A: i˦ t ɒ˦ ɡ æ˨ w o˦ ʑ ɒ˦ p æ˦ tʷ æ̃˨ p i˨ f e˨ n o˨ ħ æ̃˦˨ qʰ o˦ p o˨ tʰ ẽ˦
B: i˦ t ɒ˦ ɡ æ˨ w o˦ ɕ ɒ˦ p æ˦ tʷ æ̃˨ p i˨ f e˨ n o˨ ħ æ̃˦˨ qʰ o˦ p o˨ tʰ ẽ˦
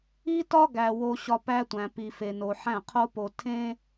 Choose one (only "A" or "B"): B